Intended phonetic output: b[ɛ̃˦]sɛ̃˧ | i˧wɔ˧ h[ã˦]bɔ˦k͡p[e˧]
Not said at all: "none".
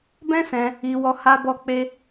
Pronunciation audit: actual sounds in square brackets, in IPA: ɛ̃˦, a˦, e˦

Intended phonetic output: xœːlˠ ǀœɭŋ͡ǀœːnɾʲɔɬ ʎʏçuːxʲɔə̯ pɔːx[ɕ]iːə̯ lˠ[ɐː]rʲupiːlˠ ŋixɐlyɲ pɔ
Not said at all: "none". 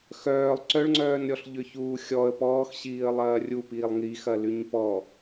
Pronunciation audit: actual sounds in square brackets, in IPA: ɕ, ɐː

